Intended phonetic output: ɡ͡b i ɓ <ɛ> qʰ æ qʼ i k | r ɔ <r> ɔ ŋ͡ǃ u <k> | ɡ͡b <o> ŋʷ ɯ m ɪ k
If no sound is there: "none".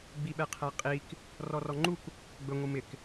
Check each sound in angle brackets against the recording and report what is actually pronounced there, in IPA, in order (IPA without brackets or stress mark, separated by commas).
ɛ, r, k, ɵ